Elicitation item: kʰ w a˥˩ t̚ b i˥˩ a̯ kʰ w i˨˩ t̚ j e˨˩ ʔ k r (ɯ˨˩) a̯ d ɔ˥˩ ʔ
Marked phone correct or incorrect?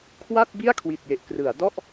incorrect